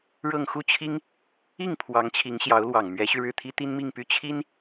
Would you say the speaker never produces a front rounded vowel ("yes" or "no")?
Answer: no